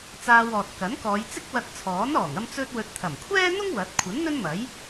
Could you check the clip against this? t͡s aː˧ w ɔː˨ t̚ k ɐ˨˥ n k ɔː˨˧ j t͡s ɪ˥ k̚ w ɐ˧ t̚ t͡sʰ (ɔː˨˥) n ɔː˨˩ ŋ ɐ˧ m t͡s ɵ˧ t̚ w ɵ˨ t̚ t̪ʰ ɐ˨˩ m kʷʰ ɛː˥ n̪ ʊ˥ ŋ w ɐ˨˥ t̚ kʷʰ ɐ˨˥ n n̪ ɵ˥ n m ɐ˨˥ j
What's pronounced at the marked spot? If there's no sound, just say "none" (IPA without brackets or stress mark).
ɔː˨˥